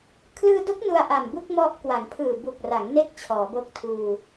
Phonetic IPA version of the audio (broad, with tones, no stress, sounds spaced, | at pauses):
kʰ l ɯː˧ d o˦˥ k̚ n u˧ a̯ ʔ a˨˩ m b u˥˩ k̚ m ɔ˦˥ ʔ k w a˩˦ ŋ pʰ ɯː˨˩ b u˨˩ k̚ r a˩˦ ŋ n e˥˩ k̚ t͡ɕʰ ɔː˩˦ b o˦˥ k̚ tʰ uː˧